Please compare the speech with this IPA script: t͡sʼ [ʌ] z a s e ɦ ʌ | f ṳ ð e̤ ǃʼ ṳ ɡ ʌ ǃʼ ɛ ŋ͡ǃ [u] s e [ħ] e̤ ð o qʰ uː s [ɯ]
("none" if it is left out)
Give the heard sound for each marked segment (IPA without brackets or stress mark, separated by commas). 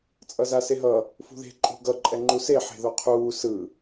ʌ, u, ħ, ɯ